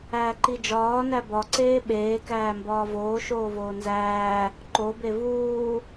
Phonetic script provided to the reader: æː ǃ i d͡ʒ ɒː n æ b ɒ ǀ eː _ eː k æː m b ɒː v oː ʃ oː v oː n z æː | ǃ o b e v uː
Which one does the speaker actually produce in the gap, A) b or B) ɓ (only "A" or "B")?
B